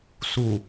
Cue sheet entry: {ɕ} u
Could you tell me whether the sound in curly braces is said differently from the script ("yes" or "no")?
yes